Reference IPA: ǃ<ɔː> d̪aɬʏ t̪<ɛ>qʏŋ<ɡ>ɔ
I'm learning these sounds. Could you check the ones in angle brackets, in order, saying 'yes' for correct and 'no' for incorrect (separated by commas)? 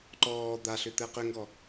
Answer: yes, yes, yes